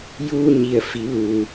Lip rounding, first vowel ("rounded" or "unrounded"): rounded